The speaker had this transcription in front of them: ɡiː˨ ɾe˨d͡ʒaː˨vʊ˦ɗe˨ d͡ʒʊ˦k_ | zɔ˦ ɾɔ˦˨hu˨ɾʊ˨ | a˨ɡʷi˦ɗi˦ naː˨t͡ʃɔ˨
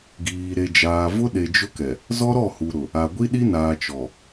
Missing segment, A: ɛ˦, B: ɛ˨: B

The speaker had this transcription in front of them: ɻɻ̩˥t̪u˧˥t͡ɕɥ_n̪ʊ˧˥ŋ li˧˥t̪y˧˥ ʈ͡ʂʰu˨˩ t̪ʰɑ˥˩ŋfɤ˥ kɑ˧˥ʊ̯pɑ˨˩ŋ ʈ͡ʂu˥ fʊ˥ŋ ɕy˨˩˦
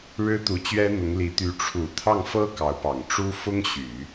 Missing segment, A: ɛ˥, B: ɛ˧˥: A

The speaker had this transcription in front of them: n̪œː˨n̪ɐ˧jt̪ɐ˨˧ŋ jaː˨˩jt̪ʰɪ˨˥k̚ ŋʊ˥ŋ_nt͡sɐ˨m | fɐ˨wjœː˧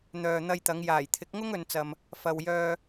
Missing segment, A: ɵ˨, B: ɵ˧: A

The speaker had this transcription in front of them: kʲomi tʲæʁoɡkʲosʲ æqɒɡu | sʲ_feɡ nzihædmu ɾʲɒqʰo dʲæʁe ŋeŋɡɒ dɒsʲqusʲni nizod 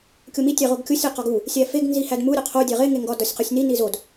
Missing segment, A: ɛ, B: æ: B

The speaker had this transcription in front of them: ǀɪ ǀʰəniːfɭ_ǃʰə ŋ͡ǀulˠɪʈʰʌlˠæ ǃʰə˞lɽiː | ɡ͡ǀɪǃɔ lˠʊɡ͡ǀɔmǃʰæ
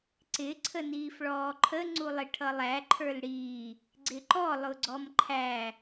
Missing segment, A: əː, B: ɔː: B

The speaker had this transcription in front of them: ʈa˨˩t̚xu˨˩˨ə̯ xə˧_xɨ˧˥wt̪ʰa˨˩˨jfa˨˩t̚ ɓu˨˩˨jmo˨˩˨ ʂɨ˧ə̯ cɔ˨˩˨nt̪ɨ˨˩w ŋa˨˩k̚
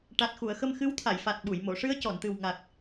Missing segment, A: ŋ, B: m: B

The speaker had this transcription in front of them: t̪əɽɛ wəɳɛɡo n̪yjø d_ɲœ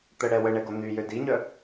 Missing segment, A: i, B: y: A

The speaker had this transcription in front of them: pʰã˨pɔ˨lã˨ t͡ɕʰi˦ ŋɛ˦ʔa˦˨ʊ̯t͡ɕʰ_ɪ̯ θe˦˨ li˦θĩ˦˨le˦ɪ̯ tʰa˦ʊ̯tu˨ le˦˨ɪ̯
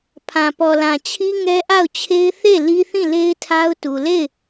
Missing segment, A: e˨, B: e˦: B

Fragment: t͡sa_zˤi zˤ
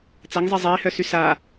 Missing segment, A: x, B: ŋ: B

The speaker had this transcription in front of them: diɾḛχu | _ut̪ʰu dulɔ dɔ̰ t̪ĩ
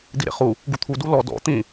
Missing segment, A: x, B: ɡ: B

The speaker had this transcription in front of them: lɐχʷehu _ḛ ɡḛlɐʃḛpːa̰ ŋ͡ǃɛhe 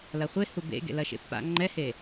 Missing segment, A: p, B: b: B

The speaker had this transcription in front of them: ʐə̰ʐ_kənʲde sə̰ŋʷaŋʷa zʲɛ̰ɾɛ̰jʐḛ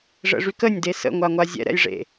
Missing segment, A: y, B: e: A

